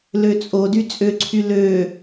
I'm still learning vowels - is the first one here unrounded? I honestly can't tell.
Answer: no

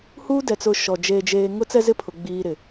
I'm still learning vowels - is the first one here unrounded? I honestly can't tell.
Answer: no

